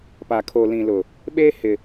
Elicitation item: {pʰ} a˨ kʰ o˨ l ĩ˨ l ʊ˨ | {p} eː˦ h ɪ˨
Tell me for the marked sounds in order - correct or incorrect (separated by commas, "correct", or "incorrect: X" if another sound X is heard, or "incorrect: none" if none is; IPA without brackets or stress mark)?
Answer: incorrect: p, incorrect: ɓ